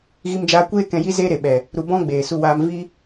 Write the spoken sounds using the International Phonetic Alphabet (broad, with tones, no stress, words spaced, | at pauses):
ɣi˧md͡ʒaː˧kʷeː˦ kɛ̃˧ ji˦zeː˦ɾe˨ɓɛ˨ | ɾu˧bɔ̃˦ɡ͡beː˨ su˦waː˦m vi˦